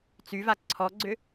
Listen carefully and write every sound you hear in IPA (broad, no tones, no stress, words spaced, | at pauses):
t͡syva ǀʰɔɡ͡ǀʏ